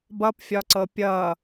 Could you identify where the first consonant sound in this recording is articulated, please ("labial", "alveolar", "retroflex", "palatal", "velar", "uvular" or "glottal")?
labial